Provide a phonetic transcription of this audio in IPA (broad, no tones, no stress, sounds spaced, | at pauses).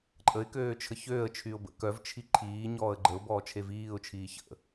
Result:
ǃʼ ə ɪ̯ k øː t͡ʃʰ ə ç øː ə̯ t͡ʃʰ y ʊ̯ b ə̰ k œ v t͡ʃʰ i ǃʰ iː ɲ ɔː ə̯ ɡ͡ǃ ə ʊ̯ b ɔː t͡ʃʰ e v iː ʊ̯ t͡ʃʰ iː ç ə̰